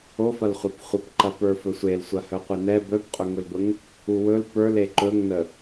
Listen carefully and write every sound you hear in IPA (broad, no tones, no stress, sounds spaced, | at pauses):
o f ɐ l χʷ a p χʷ ɐ p ǃ ɐ p ə˞ f ɵ sʷ e l sʷ ɐ h œ qʷ e n ɛ b œ p qʼ ɵ ŋ ɵ l b ə ŋ | u w ɵ l p ə˞ l e ǃ ɵ ŋ n ə